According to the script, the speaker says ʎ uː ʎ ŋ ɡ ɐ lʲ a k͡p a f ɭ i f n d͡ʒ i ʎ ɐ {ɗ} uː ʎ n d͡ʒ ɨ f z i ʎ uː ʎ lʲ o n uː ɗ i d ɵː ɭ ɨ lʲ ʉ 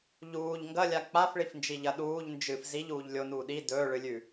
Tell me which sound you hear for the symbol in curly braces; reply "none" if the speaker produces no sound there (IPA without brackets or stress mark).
ɗ